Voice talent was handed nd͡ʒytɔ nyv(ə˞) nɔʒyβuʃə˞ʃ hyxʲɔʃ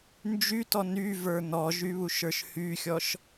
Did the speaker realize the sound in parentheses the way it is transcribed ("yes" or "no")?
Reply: yes